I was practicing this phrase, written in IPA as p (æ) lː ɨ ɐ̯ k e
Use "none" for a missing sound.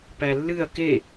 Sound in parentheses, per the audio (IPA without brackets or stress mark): æ